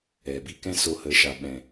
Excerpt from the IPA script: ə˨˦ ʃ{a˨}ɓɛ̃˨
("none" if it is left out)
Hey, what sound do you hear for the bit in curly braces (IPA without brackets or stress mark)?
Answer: a˨